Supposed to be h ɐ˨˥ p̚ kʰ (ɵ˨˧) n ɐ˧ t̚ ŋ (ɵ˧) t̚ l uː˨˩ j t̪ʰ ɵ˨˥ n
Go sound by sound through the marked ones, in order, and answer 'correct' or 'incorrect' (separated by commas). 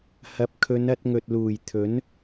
correct, incorrect